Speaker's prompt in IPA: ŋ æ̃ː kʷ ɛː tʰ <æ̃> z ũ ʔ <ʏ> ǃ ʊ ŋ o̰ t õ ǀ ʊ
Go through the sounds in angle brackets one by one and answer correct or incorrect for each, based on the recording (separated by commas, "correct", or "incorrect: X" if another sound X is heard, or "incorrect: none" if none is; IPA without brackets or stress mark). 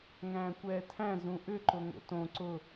correct, correct